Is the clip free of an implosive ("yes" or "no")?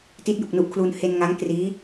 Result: yes